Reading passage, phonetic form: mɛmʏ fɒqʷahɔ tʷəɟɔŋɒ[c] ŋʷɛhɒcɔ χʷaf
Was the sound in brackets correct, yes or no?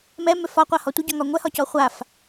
no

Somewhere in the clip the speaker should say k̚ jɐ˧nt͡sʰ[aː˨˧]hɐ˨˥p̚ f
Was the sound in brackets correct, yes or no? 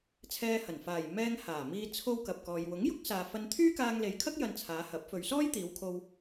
yes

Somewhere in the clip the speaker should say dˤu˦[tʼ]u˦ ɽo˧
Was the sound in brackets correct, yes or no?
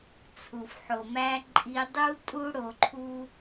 yes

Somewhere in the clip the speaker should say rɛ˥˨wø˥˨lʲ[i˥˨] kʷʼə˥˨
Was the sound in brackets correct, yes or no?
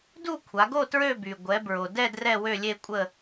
no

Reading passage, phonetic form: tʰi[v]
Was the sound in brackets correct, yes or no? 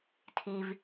yes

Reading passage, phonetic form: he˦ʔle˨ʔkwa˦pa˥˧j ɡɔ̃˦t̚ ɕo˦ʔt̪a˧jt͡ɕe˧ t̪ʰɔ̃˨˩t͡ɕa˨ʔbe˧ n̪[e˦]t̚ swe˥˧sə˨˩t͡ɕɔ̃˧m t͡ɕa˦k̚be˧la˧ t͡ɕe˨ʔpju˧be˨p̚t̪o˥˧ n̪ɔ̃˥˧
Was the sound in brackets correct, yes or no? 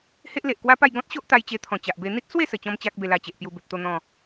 no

